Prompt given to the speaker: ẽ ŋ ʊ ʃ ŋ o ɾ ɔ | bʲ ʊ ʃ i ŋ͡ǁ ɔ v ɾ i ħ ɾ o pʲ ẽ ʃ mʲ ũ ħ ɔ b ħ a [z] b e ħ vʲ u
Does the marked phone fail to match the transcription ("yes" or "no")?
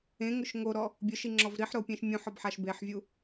yes